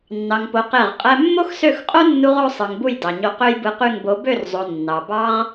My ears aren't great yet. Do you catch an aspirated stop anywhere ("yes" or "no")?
no